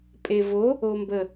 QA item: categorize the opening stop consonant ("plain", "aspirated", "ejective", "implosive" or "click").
ejective